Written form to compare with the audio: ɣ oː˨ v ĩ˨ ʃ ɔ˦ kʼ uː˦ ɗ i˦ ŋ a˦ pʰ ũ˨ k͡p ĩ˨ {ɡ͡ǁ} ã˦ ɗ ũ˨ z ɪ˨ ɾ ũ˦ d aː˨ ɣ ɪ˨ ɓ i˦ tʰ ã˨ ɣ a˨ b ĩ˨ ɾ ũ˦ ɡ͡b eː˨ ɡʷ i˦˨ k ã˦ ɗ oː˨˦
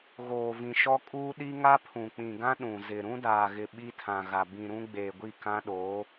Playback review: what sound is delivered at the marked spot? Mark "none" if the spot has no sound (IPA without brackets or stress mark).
ɡ